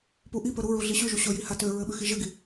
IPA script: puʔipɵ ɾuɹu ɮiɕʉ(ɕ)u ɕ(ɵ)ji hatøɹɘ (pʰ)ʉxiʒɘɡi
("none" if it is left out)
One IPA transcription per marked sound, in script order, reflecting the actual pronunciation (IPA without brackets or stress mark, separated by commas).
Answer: ʒ, ɵ, ɓ